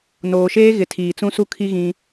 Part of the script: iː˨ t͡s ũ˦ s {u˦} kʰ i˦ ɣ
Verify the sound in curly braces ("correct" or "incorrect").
correct